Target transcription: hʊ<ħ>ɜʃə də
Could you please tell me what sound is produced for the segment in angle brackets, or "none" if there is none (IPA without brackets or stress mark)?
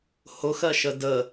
x